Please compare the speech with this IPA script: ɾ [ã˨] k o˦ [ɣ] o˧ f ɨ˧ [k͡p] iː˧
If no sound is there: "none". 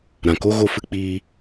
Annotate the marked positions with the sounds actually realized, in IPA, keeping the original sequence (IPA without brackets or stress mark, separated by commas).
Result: ã˨, ɣ, k͡p